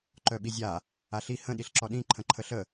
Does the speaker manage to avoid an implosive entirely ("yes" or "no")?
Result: no